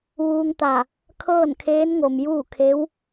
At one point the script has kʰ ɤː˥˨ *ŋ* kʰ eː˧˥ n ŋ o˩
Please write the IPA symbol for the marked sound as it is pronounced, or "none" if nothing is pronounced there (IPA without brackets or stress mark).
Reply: n